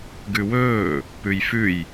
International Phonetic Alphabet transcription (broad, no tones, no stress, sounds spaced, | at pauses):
ɡ ʉ w ɵː | p ʉ j f ʉ j